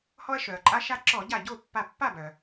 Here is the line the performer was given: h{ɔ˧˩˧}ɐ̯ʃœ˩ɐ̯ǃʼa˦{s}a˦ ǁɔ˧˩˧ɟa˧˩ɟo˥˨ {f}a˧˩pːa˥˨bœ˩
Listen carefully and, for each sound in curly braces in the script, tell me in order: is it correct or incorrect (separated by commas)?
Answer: incorrect, incorrect, incorrect